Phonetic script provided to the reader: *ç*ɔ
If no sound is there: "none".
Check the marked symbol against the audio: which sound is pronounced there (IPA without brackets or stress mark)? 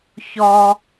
ç